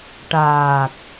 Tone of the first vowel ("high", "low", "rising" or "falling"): low